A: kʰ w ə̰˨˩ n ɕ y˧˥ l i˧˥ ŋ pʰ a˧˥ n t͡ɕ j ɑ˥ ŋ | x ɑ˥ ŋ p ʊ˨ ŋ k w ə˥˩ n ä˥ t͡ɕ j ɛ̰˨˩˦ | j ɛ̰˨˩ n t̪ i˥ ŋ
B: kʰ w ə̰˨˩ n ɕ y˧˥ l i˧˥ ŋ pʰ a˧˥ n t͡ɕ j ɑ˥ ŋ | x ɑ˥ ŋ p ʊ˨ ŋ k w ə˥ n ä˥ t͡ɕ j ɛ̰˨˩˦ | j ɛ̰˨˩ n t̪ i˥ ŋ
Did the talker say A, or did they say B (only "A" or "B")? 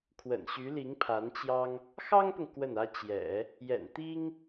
A